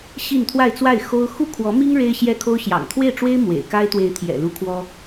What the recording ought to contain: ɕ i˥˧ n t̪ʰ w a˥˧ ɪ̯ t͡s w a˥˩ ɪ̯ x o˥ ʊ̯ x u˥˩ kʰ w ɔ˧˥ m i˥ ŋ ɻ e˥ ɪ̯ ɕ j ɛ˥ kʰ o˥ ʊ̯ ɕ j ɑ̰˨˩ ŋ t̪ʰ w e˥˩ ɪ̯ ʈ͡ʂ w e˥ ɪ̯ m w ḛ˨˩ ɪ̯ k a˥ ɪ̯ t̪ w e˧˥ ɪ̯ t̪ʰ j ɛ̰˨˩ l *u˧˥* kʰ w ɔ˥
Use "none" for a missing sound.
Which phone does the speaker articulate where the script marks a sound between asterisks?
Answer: u˧˥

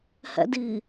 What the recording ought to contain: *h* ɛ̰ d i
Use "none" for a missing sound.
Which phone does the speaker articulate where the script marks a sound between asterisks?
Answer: h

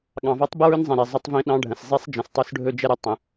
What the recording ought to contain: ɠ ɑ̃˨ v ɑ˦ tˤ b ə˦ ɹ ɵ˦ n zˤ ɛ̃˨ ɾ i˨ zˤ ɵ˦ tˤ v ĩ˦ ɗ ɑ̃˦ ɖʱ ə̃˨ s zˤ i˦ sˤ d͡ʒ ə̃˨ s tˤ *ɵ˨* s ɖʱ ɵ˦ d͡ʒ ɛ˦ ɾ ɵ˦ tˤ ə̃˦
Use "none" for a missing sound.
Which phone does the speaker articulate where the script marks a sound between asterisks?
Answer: ɵ˦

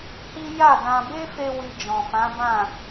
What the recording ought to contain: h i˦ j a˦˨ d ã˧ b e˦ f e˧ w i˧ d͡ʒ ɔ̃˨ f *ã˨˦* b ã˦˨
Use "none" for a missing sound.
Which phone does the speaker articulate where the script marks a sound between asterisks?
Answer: ã˨˦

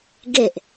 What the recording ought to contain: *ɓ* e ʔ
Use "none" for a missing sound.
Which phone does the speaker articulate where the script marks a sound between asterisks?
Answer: ɡ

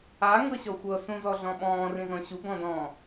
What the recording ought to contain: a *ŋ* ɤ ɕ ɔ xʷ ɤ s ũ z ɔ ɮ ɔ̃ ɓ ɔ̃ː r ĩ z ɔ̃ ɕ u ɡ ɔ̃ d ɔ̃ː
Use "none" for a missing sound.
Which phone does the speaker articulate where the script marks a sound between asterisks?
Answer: ŋ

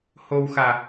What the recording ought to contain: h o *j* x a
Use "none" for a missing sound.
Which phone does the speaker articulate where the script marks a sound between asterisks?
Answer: w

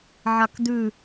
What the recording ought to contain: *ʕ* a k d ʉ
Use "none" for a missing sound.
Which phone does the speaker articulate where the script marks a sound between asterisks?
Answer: ʕ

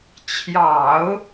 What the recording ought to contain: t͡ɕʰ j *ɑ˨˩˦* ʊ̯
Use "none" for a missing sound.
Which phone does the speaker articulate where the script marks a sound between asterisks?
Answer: ɑ˨˩˦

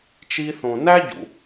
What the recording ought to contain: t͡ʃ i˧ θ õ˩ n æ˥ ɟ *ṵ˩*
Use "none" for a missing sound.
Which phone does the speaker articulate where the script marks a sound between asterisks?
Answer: ṵ˩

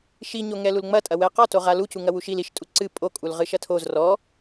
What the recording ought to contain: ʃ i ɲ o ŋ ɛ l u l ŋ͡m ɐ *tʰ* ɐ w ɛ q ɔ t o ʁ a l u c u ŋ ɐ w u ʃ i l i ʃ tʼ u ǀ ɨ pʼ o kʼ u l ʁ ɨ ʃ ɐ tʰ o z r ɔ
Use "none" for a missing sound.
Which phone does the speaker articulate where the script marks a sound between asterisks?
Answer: tʼ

